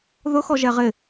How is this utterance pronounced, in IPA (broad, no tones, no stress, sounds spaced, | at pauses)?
ð ʊ x ɔ ʒ ɛ ʁ ɪ